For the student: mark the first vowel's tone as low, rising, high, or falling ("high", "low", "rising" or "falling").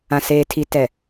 low